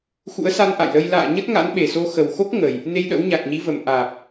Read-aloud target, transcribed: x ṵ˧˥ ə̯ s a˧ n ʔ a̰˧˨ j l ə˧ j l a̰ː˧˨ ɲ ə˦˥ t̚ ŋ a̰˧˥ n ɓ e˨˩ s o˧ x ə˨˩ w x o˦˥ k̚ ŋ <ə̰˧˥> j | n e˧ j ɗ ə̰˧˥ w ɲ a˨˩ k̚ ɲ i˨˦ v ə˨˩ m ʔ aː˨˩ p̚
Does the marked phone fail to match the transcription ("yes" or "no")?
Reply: yes